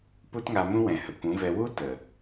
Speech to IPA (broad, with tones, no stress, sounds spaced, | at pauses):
p u˦ t ŋ a˧ m ũ˦ w ɛ̃˨ h ə˨ kʷ ũ˨˦ v ɛ˧ w u˦ t ə˨